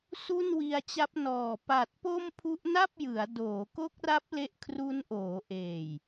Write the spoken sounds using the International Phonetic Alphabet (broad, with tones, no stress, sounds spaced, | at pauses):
s u˥˩ n w i˧ a̯ t͡ɕ a˦˥ p̚ n ɔː˨˩ p a˨˩ t̚ p o˥˩ m pʰ u˦˥ ʔ n a˥˩ p̚ j ɯ˩˦ a̯ d oː˩˦ k o˦˥ k̚ r a˦˥ p̚ l e˥˩ ʔ kʰ r u˦˥ n ʔ oː˩˦ ʔ eː˨˩ j